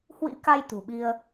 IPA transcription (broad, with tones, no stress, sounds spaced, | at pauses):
h w ḭ˧˥ k a˧ j t̪ ṳ˨˩ ɓ i˧ ə̯